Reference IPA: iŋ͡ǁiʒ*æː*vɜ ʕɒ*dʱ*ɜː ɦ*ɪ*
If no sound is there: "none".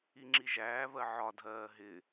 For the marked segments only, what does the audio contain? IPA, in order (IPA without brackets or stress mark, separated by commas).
æː, dʱ, ɪ